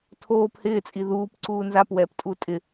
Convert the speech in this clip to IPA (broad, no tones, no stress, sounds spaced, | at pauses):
tʰ oː p h ɪː t͡sʼ i ð uː p ǀ uː n z a p w ɛː p tʼ u tʼ ɪ